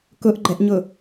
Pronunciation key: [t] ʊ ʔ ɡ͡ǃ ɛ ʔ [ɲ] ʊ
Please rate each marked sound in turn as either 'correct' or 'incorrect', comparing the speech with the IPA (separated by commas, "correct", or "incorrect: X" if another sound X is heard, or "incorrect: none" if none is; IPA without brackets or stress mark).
incorrect: k, correct